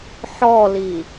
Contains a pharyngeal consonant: yes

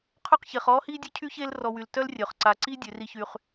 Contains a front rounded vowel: yes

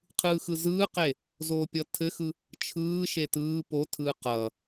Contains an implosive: no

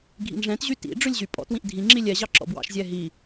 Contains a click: yes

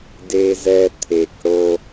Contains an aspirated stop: yes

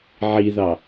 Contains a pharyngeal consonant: yes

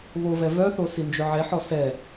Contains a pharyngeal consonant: yes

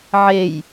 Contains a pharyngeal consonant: yes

